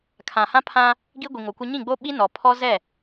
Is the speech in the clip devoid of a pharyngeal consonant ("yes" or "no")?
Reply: yes